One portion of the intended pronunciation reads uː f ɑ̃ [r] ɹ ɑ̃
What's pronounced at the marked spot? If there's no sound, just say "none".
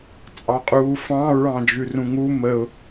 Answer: none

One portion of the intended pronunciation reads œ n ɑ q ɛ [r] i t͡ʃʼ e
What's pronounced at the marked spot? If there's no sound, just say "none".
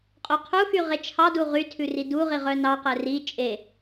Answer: r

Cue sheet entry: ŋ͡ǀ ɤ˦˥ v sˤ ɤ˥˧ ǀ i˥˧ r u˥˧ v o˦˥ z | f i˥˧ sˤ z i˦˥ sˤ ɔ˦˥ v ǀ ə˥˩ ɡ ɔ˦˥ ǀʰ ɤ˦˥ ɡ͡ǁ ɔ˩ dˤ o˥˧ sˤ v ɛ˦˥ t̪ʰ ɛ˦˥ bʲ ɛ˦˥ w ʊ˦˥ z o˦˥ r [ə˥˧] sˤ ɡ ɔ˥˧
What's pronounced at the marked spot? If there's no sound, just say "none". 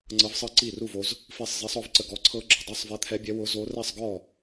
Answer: ɛ˥˧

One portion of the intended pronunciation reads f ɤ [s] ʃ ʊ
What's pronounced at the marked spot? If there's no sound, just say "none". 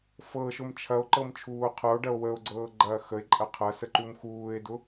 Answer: none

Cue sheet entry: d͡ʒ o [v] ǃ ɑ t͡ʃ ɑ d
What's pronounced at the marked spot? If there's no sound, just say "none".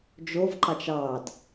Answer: v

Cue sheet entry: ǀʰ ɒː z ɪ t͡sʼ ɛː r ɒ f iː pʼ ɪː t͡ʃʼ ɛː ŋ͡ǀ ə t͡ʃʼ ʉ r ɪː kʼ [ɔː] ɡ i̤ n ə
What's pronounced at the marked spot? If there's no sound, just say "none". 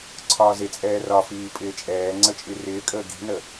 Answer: əː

